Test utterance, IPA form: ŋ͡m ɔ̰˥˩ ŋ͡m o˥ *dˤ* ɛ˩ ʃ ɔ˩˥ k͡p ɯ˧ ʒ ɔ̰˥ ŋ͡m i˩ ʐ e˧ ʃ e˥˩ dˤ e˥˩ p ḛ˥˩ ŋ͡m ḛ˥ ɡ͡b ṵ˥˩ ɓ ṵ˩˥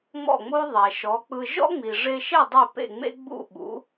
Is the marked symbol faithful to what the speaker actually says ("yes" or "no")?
no